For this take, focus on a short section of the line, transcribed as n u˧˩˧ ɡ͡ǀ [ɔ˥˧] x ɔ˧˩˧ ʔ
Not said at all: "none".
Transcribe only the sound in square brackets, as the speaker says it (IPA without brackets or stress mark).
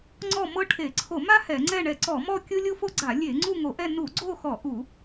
o˥˧